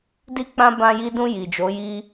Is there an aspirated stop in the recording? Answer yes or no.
no